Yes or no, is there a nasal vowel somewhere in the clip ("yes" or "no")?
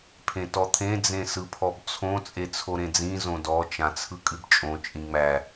yes